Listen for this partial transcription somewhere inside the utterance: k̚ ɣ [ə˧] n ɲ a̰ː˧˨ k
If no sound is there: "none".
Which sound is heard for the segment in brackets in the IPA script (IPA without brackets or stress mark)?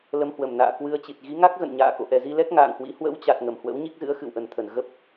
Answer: ə̰˧˨